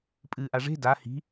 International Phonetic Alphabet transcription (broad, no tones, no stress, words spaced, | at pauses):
pʼɨːʔaʐe̤ da hi̤